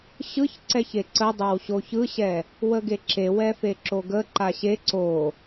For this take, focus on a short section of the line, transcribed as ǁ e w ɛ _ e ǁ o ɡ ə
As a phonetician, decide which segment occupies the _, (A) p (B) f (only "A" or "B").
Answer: B